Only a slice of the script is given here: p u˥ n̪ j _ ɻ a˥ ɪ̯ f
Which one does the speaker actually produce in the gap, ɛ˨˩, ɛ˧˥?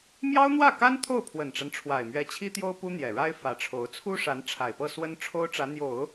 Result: ɛ˨˩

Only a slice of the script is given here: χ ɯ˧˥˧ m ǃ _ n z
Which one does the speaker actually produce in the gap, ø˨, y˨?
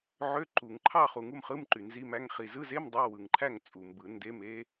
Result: y˨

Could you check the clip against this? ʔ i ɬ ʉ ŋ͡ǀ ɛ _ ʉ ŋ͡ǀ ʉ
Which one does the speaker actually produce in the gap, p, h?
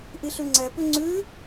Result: p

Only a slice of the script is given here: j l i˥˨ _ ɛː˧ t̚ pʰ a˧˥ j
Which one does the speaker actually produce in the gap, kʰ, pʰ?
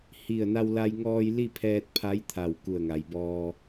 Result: pʰ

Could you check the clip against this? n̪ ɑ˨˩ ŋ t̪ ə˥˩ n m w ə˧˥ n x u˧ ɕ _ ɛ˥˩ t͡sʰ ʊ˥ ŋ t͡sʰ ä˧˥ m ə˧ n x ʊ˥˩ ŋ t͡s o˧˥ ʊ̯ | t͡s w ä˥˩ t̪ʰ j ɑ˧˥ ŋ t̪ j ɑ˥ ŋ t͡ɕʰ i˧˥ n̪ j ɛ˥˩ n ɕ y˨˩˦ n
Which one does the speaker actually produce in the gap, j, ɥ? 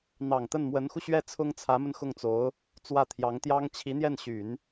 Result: ɥ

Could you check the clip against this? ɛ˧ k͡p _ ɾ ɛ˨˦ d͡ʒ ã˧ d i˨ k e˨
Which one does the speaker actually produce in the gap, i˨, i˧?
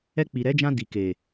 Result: i˨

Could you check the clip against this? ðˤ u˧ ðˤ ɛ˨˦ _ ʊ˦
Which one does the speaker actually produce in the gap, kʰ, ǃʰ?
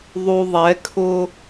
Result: kʰ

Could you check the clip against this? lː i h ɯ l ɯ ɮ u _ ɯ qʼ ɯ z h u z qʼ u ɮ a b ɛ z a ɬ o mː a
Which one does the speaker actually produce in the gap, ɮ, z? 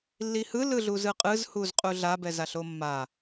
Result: z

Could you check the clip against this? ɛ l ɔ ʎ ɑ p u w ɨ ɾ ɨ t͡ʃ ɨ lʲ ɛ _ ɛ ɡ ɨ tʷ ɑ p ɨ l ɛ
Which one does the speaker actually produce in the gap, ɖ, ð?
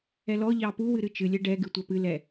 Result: ɖ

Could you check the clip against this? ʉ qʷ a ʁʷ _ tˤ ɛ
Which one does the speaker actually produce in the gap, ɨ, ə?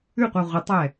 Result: ə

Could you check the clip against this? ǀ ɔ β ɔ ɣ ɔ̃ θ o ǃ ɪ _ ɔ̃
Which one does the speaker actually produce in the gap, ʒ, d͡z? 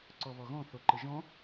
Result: ʒ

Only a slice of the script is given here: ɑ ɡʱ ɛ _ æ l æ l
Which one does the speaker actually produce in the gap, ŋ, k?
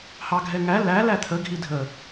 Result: ŋ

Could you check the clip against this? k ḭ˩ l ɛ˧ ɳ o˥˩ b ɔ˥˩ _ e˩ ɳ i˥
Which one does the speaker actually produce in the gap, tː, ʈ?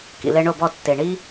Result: tː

